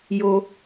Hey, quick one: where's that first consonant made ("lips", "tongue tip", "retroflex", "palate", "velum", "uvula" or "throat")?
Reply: palate